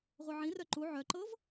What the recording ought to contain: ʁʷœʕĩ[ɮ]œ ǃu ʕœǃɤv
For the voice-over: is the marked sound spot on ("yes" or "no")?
no